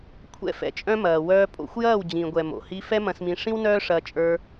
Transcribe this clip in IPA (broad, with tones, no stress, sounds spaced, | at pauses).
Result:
kʷʰ ɛ̰˧ f ɛ̰˨ t͡ʃʼ œ̃˧ m ɐː˨ w œː˧ pʼ o̰˧ xʷ j ɐː˦˨ w d͡ʑ ĩ˨ ɡʷ ɛ˨ m o̰˨ h i˧ f ɛ˦ m ɐ̃˧ s m ĩ˧ ʂ ĩ˦ w n œː˦ ʂ ɐː˧ t͡ʃʼ ə˞˧